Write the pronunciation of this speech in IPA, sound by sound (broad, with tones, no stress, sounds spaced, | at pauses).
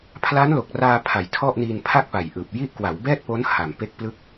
pʰ l aː˦˥ n l o˨˩ k̚ r aː˧ pʰ a˩˦ j tʰ ɔ˥˩ ʔ n iː˧ n pʰ a˥˩ k̚ p a˨˩ j ʔ ɯː˨˩ p̚ j i˦˥ ʔ k w a˩˦ w b ɛː˥˩ t̚ p o˦˥ n h a˨˩ m p e˦˥ k̚ p l ɯ˦˥ k̚